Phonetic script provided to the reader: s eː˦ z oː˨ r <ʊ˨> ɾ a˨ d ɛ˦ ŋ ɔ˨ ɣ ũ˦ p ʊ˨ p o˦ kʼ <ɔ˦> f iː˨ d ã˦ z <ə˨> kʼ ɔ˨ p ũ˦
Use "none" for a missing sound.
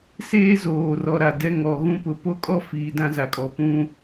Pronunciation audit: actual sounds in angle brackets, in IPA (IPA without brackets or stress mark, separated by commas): ɔ˨, ɔ˦, a˨